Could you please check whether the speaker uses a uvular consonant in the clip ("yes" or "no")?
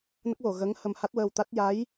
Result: no